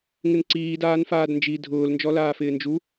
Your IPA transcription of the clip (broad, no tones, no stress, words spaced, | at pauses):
ŋɪnǀiːdaːn faːdnd͡ʒi dʱʊːlnd͡ʒɔlaːfɪː nd͡ʒu